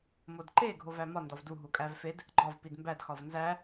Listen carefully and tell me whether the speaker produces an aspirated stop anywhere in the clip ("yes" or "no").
no